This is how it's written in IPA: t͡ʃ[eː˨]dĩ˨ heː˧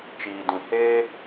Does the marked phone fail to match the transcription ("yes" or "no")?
yes